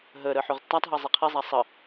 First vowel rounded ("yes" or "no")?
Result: no